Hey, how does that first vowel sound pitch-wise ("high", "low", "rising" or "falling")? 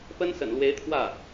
high